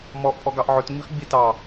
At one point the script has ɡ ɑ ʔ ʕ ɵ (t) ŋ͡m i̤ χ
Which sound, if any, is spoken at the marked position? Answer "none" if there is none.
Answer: t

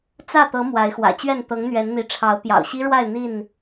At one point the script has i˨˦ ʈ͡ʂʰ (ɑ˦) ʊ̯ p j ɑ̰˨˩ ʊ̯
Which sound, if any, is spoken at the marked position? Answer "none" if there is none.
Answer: ɑ˨˦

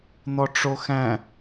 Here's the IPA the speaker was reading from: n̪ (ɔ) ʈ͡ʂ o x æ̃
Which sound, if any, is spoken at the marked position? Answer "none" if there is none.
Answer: ɔ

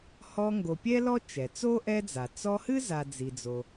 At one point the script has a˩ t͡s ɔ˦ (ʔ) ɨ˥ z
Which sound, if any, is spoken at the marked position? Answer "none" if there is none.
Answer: h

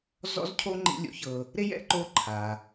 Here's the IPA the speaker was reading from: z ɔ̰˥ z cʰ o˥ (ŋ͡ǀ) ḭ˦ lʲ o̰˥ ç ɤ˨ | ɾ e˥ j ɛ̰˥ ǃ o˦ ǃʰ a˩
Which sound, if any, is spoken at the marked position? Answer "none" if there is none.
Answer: ŋ͡ǃ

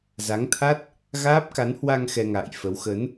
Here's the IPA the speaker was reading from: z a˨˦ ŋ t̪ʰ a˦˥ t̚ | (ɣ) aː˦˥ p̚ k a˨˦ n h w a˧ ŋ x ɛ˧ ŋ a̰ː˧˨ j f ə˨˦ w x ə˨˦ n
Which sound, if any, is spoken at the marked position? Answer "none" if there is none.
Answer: ɣ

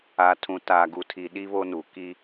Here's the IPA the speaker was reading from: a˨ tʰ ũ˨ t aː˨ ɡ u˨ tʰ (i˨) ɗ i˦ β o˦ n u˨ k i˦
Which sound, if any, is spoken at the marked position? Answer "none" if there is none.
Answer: i˨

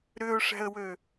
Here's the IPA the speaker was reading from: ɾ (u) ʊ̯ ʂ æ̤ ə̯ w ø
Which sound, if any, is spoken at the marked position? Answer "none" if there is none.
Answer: ʏ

